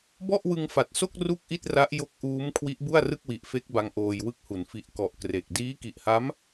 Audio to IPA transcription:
b ɔ˥˩ ʔ w ɯ˧ ŋ f a˨˩ t̚ s o˥˩ k̚ r u˥˩ k̚ ʔ i˥˩ t̚ r a˦˥ ʔ j o˦˥ k̚ ʔ uː˦˥ m kʰ w i˦˥ ʔ b u˥˩ a̯ r ɯ˥˩ k̚ w i˨˩ ʔ f e˦˥ k̚ b a˦˥ ŋ ʔ oː˧ j w ɯ˥˩ k̚ h u˩˦ n f i˨˩ ʔ k ɔ˨˩ ʔ k r e˨˩ k̚ d iː˦˥ k i˨˩ ʔ h a˦˥ m

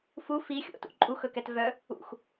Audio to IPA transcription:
f u f i xʲ o̰ t ṵ ǃʼ u x ɵ k ɛ t v œ | ṵ x

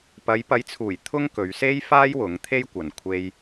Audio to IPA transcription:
p ɐ˨˧ j p ɐ˨˥ j t͡sʰ uː˨˩ j t̪ʰ ʊ˥ ŋ k ɵ˨˧ ɥ s e˥ j f aː˥ j w ʊ˨˥ ŋ t̪ʰ e˥ j kʷ ɐ˨ n kʷʰ e˧ j

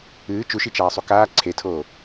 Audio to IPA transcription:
ɨː t͡ʃ u ʃ i t͡ʃ aː sˤ u k aː ǀʰ e tʰ oː

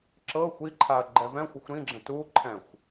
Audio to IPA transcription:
ǁ ɤ xʷ i ǃʰ a ɐ̯ ɡ͡ǃ ɛ v ɛ̃ xʷ ɘ xʷ ɾ ĩ ɡ͡ǁ ə̃ t u ǃʰ ɛ̃ xʷ

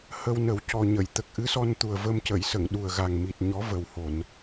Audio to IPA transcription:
h ə˧ w n ə˨˩˦ w c ɔ˨˩ ɲ ə˨˩˨ j t̪ ə˨˩ k̚ ʔ ɨ˧˥ s ɔ˧ n t̪ u˨˩ ə̯ v ə˧ m c ə˨˩˨ j s ə˨˩˨ ŋ ɗ u˨˩ ə̯ ɣ a˨˩ ŋ m i˨˩ t̚ ɲ ɔ˧˥ v ə˨˩ w h o˨˩˨ n

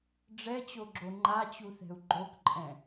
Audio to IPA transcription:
ɖ͡ʐ ɛ t͡ɕ o ɡ͡ǁ o ŋ͡ǃ a t͡ɕ u θ ɛ̤ u̯ ɡ͡ǃ o k ǃʼ ɛ̃

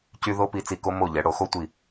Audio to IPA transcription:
c y˧ ð o˧ p i˧˩ t͡s i˧˩ k o˧ m o˧˩ ʎ ɛ˩˧ ɽ o˩˧ x o˧ tʷ i˧˩

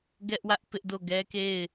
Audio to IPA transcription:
ɡ ɛ˦ ʔ w ä˦ ʔ p ɪ˦ ʔ d o˦˨ ɡ ɛ˦ k e˦˨ ɪ̯

